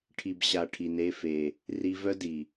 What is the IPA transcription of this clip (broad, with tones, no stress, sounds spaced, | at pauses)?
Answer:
ʈʰ i˨ b ɕ a˨ ʈʰ i˨ n e˦˨ f e˨ | r i˧ v œ˦ d i˨